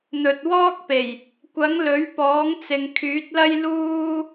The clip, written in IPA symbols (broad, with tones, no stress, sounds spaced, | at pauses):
n̪ ɵ˨ t̚ w ɔː˥ k̚ p e˨˩ j | kʷ ɐ˨˥ ŋ l ɵ˨˥ ɥ p ɔː˨˥ ŋ t͡s ɪ˨ ŋ kʰ yː˨˥ t̚ l ɐ˥ j l uː˥